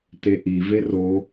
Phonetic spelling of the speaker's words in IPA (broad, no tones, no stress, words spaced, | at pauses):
teʔi vero